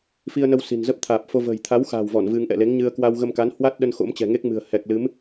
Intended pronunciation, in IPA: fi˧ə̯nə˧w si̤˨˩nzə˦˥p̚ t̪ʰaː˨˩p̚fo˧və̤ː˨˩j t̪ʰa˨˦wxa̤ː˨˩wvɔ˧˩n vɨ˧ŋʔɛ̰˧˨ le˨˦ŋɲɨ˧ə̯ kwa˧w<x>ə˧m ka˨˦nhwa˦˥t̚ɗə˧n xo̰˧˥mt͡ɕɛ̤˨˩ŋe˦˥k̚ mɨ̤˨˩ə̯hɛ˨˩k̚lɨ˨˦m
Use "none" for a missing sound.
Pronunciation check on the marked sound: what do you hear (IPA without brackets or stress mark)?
ɣ